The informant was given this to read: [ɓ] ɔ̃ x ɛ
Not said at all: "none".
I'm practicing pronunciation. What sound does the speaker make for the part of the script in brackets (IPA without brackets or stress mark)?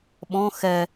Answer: ɓ